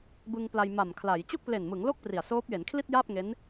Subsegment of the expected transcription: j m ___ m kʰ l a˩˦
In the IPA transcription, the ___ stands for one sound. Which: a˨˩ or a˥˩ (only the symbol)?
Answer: a˨˩